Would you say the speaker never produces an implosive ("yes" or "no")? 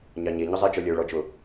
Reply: yes